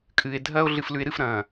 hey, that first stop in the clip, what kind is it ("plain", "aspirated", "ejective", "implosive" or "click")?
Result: ejective